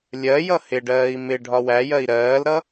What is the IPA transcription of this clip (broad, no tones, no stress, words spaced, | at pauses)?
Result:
lʲɜjʌ hɪɖɜːi̯ mɪ ɖʱɒwæjɜi̯ ɾɜːlɾʌ